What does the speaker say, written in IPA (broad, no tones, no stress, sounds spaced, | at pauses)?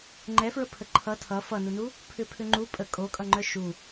ŋ͡ǃ ɛ f ɹ ə pʰ ə ǃʰ ʌ tʰ ʌ f ʌ n u n u | pʰ ʏ pʰ ʏ ŋ͡ǃ u pʼ ə kʼ o kʼ ʌ ŋ͡ǃ œ ʃ u